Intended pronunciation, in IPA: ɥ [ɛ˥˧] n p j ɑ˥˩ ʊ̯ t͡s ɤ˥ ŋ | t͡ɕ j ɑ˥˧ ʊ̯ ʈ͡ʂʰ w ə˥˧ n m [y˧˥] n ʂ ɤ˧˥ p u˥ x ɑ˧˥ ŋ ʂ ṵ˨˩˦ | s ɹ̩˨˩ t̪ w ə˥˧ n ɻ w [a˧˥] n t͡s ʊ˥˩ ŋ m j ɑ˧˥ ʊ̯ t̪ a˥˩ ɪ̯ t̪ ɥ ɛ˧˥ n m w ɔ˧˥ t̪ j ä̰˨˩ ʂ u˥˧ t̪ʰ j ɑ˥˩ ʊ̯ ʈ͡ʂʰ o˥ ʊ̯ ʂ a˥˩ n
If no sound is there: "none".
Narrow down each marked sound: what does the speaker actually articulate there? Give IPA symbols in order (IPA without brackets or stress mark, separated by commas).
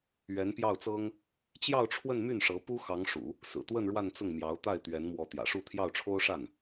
ɛ˧˥, y˥˩, a˥˧